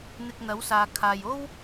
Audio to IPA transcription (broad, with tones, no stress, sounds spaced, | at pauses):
n̪ ɪ˧ k̚ n̪ ɐ˨˥ w s aː˨ kʰ aː˧ j o˥ w